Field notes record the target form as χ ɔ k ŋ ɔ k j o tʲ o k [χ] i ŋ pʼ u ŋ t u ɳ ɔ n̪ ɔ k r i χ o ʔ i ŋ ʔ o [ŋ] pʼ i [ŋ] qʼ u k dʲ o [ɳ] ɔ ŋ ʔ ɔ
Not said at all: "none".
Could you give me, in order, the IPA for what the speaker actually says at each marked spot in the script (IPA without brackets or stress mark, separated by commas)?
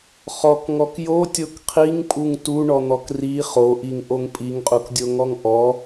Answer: qʰ, ŋ, ŋ, ŋ